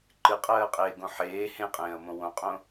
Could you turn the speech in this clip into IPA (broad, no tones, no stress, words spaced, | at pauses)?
ǃɨqʼɜːqʼeːɡõ ħeː hẽqʼẽːɐ̯mõ wõqʼõ